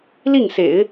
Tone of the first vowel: falling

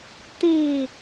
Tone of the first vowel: falling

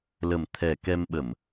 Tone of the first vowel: low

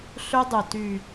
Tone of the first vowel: high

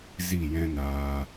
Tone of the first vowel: falling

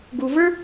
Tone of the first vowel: low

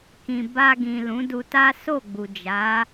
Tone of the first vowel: low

